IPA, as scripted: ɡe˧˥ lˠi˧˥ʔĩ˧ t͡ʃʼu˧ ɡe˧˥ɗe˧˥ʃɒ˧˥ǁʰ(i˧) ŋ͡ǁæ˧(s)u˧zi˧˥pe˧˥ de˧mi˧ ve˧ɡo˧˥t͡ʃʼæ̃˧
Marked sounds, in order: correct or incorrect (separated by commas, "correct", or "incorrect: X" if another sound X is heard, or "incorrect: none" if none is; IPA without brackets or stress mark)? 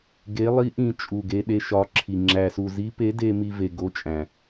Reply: correct, correct